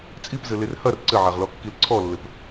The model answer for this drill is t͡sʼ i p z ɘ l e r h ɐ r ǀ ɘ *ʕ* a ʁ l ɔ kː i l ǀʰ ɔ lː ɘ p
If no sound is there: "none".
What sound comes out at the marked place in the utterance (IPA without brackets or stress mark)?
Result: ʕ